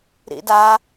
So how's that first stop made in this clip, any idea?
plain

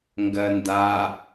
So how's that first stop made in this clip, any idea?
plain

